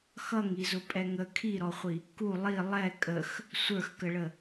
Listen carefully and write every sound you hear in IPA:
x ʌ ŋ i z ʊ pʼ ɛ ŋ ə kʰ i ɾ ɔ χʷ i | k u lˠ i lˠ ɛ kʼ ə x | sʷ ə˞ x k ə ɭ ə

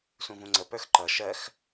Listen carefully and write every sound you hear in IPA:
s ũ v ũ ŋ͡ǀ ə p ə˞ x ǃ ʌ ʃ ɜ x

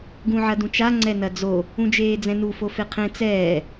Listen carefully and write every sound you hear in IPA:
ɡ ũ ʕ ɐ d ũ t͡ʃ a ŋ͡ǀ ɛ n ɐ d͡z o | ũ d͡ʒ eː d͡z ɛ̃ n u f o f e qʰ ẽ t͡s ɛː

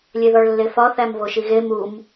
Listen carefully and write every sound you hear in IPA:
lʲ e ð ɒ ɭ lː e f ɒ θ æ m v o ʃ i ɣ e m u m

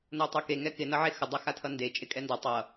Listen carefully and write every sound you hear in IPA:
n o tˤ o k e ŋ ɛ k ɪ n ʌ ʕ e x ə dˤ a x a tʰ ʌ n d e t͡ʃʼ ɪ kʼ ɛ n d ʌ tˤ ʌ

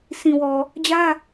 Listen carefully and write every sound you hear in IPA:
s ĩ˨ w ɔ˨ | d͡ʑ ä˦

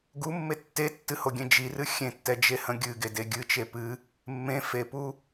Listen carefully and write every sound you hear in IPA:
ɡ u mː e tː e tː ɨ h o ɡʲ ẽ d͡ʒ i r ɨ xʲ ẽ tː ɛ d͡ʒ e h ə̃ ɡʲ ɨ ɡ e d e ɡʲ ɨ t͡ʃ e p ɨ | mː ẽ f e p u

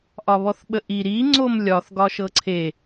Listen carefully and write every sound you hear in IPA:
ʔ ɒ β ɔ θ ɓ ə ʔ i ɾ i ŋ͡ǀ o m lʲ ɒ θ ɡ ɒ ʃ ɤ ǀʰ e

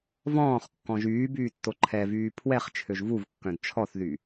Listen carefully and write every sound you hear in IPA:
v ɔ̃ː χ kː ɔ̃ ʒ yː b yː tː o ǃʰ ɛ v yː pʰ w ɛ χ t͡ʃʰ ø ʒ v u v kː œ̃ d t͡ʃʰ ɔ θ ð y

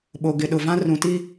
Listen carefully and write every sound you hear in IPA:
ɓ o˨ ɡ ɪ˨ ɗ ʊ˨ v ã˦ r ũ˨ t i˦

